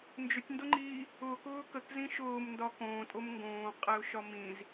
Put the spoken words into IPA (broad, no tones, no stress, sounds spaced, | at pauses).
n d͡ʒ ʊ tʲ n d ʊ ŋ͡ǃ iː | ʊː k ʊː k ə k z ĩ ʃ ʊː m n d ɒ k õː tʼ o m ŋ ɡ õː qʼ æ ʊ̯ ʃ ɒ m ĩ z